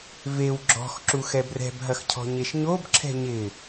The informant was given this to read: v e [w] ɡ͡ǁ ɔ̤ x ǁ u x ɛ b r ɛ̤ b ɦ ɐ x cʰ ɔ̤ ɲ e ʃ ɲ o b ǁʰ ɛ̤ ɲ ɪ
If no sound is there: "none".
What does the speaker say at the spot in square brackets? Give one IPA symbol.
w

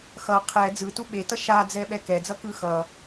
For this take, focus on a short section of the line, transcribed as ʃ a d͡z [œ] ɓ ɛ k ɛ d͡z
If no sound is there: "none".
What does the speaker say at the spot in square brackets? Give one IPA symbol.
ɛ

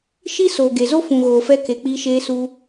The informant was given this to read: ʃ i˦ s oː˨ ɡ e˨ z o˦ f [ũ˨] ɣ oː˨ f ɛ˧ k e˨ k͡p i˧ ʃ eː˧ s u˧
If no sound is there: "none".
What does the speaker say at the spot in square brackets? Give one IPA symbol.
ũ˨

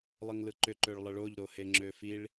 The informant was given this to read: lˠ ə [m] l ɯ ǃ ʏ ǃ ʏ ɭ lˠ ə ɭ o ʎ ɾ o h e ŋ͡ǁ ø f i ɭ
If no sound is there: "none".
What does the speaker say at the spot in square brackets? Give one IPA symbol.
ŋ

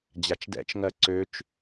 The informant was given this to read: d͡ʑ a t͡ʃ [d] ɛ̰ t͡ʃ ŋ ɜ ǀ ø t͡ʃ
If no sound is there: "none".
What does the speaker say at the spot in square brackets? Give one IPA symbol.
d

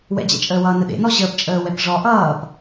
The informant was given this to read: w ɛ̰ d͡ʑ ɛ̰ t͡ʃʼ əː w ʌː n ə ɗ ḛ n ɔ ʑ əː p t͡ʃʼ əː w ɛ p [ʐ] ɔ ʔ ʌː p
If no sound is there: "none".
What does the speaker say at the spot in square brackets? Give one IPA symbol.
ʐ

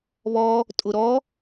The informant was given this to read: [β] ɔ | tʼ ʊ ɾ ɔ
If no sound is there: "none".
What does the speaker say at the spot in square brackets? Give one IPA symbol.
β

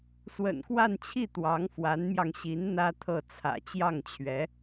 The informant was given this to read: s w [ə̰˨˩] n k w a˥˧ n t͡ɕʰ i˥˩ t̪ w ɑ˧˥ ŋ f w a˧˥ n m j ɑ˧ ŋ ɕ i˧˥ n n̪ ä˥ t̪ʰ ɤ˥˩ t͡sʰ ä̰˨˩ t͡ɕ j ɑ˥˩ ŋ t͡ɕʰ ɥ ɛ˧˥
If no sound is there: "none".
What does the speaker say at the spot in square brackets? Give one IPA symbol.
ə̰˨˩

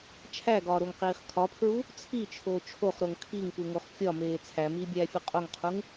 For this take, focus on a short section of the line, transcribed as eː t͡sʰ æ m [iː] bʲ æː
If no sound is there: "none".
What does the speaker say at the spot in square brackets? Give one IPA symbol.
iː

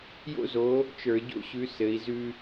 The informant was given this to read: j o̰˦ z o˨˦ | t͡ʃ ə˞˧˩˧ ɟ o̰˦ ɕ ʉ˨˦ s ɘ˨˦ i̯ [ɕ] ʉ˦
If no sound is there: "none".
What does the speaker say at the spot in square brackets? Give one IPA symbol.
z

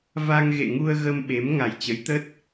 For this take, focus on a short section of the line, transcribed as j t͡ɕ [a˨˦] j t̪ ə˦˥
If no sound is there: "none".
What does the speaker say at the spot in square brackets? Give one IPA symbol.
ə˨˦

